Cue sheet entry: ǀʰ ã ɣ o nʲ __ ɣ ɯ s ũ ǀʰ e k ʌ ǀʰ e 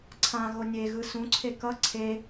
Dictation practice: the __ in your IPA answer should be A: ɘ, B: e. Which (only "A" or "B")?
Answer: B